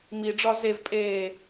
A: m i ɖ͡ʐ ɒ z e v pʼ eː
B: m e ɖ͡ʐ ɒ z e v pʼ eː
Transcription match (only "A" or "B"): A